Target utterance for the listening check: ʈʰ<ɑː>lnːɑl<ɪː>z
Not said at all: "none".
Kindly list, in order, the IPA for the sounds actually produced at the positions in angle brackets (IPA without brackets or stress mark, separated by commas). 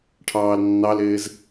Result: ɑː, ɪː